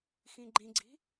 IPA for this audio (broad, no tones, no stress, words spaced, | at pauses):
xĩɡ͡ǃĩɡ͡ǀi̤